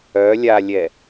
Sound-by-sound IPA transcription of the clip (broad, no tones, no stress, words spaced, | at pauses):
œlʲalʲɛ